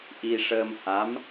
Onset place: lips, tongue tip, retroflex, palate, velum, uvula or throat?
throat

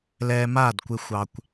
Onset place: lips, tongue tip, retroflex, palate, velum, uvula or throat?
tongue tip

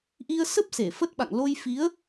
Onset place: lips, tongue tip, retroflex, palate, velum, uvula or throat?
throat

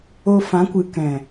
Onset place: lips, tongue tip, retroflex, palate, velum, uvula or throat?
lips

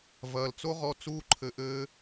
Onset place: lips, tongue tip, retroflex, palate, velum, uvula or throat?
lips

